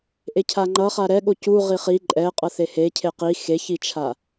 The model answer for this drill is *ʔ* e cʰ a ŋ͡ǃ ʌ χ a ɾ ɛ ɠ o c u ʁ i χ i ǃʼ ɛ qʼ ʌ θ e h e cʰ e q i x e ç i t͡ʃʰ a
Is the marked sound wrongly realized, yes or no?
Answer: no